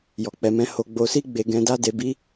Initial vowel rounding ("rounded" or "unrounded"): rounded